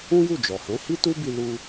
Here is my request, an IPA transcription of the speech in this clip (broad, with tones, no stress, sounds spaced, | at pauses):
ũ˦ j u˦˨ d͡ʒ ɔ˨ h ɛ̃˨˦ h i˦ t u˦ b i˧ l u˧